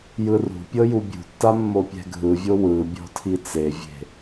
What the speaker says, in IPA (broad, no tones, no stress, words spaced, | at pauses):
jɯrṳpʲɤ jubʲṳtːa mːopʲɛ̤ɡʱɯvʲo wɯ bʲɔ̤tʰit͡sevʲe̤